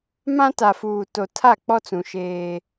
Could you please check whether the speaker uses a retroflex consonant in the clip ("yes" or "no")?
no